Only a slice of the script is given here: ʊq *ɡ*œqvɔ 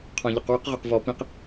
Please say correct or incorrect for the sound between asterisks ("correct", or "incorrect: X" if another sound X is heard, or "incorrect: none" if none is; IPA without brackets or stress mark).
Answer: incorrect: ʁ